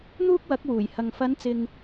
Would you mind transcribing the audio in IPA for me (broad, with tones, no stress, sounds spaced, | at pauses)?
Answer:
n̪ uː˥ k̚ w ɐ˨˥ k̚ w uː˨˩ j h ɐ˨ ŋ f ɐ˨˧ n t͡s ɪ˨ ŋ